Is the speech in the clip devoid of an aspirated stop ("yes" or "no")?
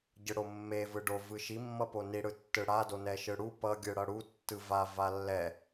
yes